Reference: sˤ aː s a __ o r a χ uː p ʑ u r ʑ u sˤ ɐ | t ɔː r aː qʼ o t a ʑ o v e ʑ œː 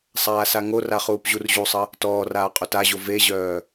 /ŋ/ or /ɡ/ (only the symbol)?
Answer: ŋ